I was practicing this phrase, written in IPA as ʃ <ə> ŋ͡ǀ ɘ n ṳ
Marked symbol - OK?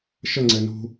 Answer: yes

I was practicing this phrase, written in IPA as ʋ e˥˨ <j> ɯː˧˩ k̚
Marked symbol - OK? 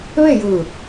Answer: yes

